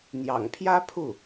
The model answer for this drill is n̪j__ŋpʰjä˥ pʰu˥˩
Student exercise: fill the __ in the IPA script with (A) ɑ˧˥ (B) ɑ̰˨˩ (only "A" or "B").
B